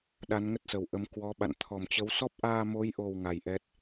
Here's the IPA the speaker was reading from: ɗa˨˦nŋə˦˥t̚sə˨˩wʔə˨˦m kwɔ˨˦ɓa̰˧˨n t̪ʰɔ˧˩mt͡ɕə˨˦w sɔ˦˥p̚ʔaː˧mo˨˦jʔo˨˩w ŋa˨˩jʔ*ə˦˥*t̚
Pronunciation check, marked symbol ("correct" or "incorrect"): incorrect